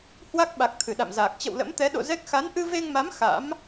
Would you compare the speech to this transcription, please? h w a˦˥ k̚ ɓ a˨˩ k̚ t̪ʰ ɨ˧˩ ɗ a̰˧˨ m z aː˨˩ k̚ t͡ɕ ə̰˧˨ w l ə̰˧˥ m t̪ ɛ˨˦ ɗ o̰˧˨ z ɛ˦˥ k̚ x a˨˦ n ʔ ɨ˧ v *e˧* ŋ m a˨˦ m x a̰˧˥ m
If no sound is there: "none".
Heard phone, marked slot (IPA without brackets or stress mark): e˧